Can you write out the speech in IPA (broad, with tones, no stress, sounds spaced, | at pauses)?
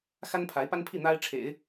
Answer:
x a˥ n pʰ a˧˥ ɪ̯ p a˥ n pʰ i˥˩ n̪ a˥ ɪ̯ ʈ͡ʂʰ ḛ˨˩˦ ɪ̯